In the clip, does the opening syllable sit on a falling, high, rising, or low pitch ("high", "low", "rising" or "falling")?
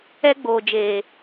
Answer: high